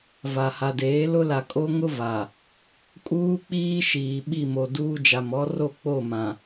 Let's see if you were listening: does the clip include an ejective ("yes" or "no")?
yes